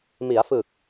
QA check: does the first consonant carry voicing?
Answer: yes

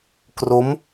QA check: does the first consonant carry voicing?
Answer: no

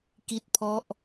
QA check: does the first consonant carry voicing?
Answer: no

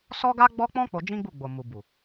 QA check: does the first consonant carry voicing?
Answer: no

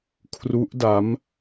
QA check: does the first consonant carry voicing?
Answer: no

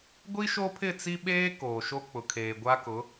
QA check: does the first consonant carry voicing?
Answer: yes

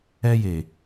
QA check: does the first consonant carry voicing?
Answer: yes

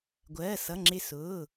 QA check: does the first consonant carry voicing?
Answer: yes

